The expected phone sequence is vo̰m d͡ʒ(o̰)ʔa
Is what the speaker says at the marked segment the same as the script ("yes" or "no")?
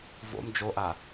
no